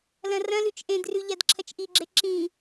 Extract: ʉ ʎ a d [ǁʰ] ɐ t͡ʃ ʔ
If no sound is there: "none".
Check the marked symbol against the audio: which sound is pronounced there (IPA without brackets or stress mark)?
ǁʰ